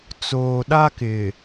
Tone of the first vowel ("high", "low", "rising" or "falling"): low